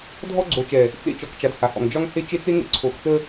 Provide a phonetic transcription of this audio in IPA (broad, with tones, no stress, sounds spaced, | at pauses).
dʱ ɔ˦ ɡ͡ǀ o˨ t͡ʃ ɛ˨ | t͡s ḛ˦ t͡ʃ ɔ˨ k t͡ʃ a˨ d h a˨ h ɔ̰˨ ŋ d͡ʒ ɒ˦ ŋ h e˦ t͡ʃ e˦ t͡s e˦ ŋ ə̰˦ ǀʰ o˨ x t͡s ə˦